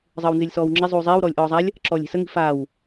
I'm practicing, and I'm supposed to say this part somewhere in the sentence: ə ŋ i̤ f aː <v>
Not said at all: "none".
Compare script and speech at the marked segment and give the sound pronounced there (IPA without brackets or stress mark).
w